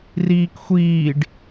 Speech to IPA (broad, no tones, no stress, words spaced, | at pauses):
riːkxʷiːɖ